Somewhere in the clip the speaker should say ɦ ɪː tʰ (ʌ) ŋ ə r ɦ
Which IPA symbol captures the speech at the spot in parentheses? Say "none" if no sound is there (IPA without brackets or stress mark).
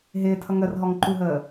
ʌ